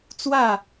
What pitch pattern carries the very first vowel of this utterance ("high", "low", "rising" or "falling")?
falling